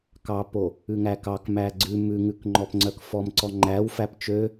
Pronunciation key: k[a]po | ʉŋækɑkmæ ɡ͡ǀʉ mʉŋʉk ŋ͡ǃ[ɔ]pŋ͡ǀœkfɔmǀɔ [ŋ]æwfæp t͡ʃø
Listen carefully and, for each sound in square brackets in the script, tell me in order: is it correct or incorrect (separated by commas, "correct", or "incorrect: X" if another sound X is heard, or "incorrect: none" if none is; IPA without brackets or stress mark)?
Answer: incorrect: ɑ, correct, incorrect: ŋ͡ǃ